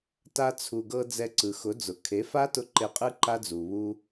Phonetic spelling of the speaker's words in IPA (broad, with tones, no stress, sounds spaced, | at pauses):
t a˧ t͡sʰ u˨ ɡ ɤ˧ d͡z ɛ˧ ǀ ɯ˨ x ʊ˨˦ d͡z ʊ˨ kʰ e˨˦ f a˦ t ʊ˧ ǃ e˧ qʼ ɯ˦ ǃ a˦ d͡z u˨ β u˦